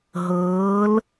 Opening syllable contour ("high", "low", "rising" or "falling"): rising